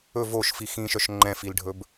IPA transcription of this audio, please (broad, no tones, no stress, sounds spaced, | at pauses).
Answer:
ɵ v o ʃ f i x ĩ ʃ œ ʃ ŋ͡ǃ ɛ̃ f i l ɖʱ ɵ b